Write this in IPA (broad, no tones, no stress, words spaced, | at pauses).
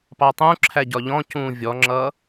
pɑtˤũǁʰæ ɟɒʎɔ̃cũː vʲɔŋ͡ǁʌ